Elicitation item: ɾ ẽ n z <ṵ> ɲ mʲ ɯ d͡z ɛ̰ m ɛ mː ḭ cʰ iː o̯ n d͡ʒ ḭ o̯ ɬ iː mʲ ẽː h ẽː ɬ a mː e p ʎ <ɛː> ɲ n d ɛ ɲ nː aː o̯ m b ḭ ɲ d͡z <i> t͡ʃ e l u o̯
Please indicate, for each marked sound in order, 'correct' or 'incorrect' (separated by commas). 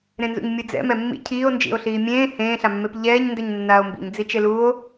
correct, correct, correct